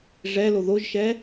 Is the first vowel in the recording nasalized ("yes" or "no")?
no